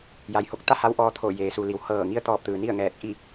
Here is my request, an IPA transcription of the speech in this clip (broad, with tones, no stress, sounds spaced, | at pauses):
j a˩ j h o˧˥ k̚ t̪ a˥˨ h a˧˥ w ʔ ɔː˧ t̪ʰ o˧˩ j eː˩ s u˩ l i˩˧ w h ɤː˧˩ ŋ i˧˥ ə̯ t̪ ɔː˧ p̚ t̪ ɯː˩ n i˥˨ ə̯ ŋ ɛː˧˩ k̚ ʔ i˥˨